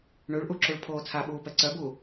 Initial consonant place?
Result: retroflex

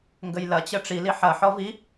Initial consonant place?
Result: velar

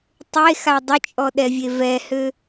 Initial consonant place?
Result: alveolar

